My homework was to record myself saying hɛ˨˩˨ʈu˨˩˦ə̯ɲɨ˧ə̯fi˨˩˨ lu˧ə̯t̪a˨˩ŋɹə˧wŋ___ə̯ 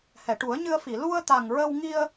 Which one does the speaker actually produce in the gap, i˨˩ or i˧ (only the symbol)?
i˧